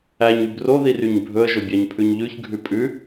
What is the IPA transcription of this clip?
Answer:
æ ɲ y b r o ð i r y ɲ bʱ ɵ ə̯ ʒ ɵ bʲ ɑ ɲ pʰ ʉ ɲ ʎ ʉ ç ɡʱ ʉ pʼ ʉ

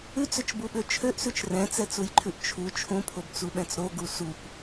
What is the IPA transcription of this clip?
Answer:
ʉ t͡s ø t͡ʃ b u ɓ ø t͡ʃʰ ø ʔ s ʉ t͡ʃ r ɛ̃ t͡s ɛ t͡s u j ǃʰ ʉ ʔ t͡ʃʰ u t͡ʃʰ ũ pʰ o b t͡s u ɓ ɛ̃ t͡s ɾ o ɡ u s u p

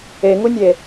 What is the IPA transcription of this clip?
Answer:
e ŋ u nʲ e

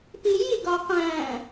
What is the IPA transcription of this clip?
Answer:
p i j i ɡ ɒ q æ̃

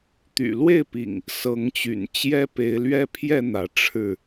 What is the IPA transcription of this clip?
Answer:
t̪ y̰˨˩ l w e˥˨ ɪ̯ p ḭ˨˩ ŋ | s ɤ˨˦ ŋ t͡ɕ y̰˨˩ n t͡ɕ j ɛ˦ p e˨˦ ɪ̯ l ɥ ɛ˦ pʰ j ɛ˥˨ n̪ ä˨˦ ʈ͡ʂʰ ɻ̩˥˨

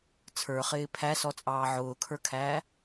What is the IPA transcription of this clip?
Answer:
t͡sʰ ə˞ χ ɪː pʰ æ s ɔ t͡sʼ ɑː ʕ ʊː kʰ ə˞ kʰ æː

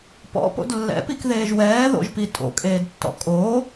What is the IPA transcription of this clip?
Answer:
p ɔ̰ p o̰ d lː ɛ̰ p i k ð eː ʒ w ɛː ð o̰ ʒ p i tʼ o̰ kʼ eː d tː ɔ̰ kʼ oː

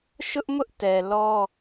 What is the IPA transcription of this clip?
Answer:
ʃ ʊ˦ ʔ m ʊ˦ ʔ t ɛ˨ l ɔ˦

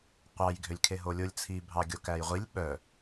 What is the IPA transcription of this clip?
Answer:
qʷ ɑ j ɡʱ ø lʲ kʰ e ɦ o lʲ o lʲ t͡sʰ i bʱ ɑ ɡʲ o k æ j ʁʷ i lʲ ɓ œ

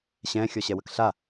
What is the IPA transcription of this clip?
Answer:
ɕ ɛ̃ xʲ ɔ ɕ ɛ w ə k ɬ a

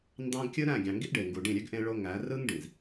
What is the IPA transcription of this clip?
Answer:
n d ɑ̃˦ ɡ kʲ ɯ˦ ɾ æ̃˦˨ ɡʲ ɑ̃˨ ŋ ɡ i˦ ʔ ɖ e˨ ŋ ɡ u˨ ɖ ĩ˦˨ ɾʲ ø˦ ɡ ʔ ẽ˦ ɭ o˦ ŋ æ˨˦ r ɯ˦ ŋ ɖ ĩ˨ z

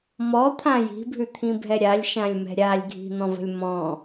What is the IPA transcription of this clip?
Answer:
m ɔ t̪ʰ ã j i̤ bʱ ʉ t̪ʰ ĩ bʱ ɛ ɾʲ a lʲ ʃ ã lʲ m ɛ̤ ɾʲ a lʲ ɡʱ i̤ n̪ ɔ̃ v ə̤ lʲ m ɔ̃

